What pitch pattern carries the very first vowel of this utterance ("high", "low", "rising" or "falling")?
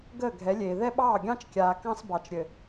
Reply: falling